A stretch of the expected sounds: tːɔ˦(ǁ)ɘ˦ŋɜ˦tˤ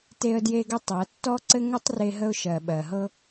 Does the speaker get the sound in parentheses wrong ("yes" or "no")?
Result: yes